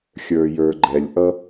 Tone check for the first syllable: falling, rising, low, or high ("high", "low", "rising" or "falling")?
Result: low